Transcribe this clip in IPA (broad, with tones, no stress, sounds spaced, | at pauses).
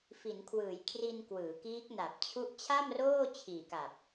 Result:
f i˩˦ n kʰ w ɯː˩˦ j kʰ r i˧ n k w ɯː˩˦ k iː˦˥ k̚ n a˨˩ p̚ t͡ɕʰ u˦˥ ʔ t͡ɕʰ a˥˩ m r oː˥˩ t͡ɕʰ iː˨˩ k a˨˩ p̚